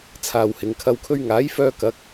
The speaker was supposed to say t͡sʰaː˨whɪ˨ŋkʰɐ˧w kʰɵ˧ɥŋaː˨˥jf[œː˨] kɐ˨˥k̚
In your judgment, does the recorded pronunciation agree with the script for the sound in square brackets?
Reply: no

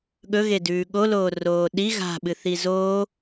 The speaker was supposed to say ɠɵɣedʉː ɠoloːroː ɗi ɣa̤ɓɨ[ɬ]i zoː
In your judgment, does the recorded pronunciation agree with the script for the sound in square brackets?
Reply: no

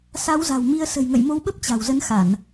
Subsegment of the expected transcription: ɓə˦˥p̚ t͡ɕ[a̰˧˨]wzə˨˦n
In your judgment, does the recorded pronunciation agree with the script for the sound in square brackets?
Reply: no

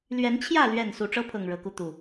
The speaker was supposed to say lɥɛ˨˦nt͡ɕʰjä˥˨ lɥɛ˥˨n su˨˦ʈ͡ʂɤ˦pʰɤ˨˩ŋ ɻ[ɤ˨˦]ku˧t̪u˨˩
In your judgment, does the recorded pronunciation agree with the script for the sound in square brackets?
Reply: yes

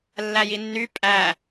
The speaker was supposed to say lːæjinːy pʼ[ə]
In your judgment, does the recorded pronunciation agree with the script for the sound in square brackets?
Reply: no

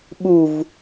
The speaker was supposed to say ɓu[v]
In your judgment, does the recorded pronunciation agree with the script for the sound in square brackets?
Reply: yes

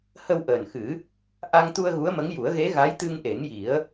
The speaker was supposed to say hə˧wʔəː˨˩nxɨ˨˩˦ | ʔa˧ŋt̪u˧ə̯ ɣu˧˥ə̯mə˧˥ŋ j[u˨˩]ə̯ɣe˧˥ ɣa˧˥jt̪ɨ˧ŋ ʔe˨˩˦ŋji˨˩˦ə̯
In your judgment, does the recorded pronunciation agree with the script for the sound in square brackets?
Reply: no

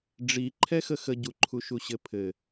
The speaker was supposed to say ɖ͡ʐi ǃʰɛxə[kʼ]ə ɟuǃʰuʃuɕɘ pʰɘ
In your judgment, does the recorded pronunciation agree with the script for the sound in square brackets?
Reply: no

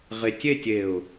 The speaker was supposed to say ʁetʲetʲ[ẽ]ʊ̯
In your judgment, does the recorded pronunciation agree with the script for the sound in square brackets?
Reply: no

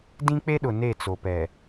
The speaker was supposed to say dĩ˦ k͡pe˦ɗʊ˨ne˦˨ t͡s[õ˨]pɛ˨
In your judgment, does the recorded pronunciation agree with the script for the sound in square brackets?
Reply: no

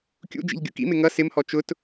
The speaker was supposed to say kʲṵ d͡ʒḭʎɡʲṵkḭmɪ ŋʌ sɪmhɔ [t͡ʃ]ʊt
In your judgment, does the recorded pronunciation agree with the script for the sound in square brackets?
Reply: yes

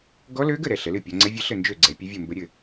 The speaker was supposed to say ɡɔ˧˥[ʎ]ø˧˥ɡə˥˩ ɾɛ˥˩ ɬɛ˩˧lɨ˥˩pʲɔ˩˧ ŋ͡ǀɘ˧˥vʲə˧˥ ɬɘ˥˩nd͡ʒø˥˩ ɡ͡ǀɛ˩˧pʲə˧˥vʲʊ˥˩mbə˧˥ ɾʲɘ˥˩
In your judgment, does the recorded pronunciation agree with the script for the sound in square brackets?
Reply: no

